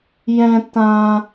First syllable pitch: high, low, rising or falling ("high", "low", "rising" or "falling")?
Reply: high